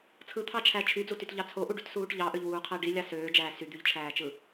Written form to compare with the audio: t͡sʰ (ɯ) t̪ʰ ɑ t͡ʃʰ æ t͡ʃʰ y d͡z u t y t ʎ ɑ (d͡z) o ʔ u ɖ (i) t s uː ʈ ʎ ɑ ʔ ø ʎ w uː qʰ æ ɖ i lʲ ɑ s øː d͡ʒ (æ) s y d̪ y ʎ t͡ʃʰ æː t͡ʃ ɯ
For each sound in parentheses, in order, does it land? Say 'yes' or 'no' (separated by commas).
yes, no, no, no